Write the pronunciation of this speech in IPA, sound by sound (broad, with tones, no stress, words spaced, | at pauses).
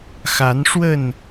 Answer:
xa˨˦nʂwə˥˨n